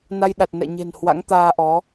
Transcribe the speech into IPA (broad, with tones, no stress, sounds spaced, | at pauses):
n a˧ j ɗ a˨˩ t̚ n ɛ̰˧˨ ɲ e̤˨˩ n h w a̰˧˥ ŋ t̪ aː˧ ʔ ɔ˨˦